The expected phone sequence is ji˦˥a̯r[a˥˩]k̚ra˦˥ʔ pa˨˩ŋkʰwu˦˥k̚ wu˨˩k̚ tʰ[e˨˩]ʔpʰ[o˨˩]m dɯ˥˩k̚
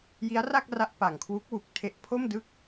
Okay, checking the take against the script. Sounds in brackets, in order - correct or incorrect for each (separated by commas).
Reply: correct, incorrect, incorrect